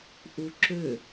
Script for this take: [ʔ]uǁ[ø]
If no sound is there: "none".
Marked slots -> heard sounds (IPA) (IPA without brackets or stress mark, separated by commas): ʔ, ø